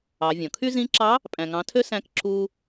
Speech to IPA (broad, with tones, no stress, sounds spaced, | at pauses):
ɑ˩˧ vʲ ɔ̃˩ kʰ y˥ z ĩ˧˥ ǁ ɑ˧˥ | pʼ æ̃˩ ŋ ɑ̃˩˧ tʰ ø˧ s æ̃˧˥ k ǁ uː˧